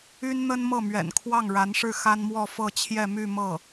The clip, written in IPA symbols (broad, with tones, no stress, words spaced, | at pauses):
y˥nn̪ə˥nmɤ˥˩ mɥɛ̰˨˩nkʰwɑ˥˩ŋɻa˧˥nʂɻ̩˥˩ xa˥nmwɔ˥˧fɤ˥˧t͡ɕʰjɛ˥˧ my˥˧mɤ˥˩